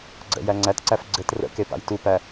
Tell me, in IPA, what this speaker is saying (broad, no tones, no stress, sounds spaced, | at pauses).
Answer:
ɡ͡ǀ ə̰ j æ ŋ͡ǀ æ t ǀ æ f ɡ͡ǀ ɘ t r ə̰ k e p a̰ j t u p æ